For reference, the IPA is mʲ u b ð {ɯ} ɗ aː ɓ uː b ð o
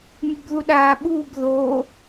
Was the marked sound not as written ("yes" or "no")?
yes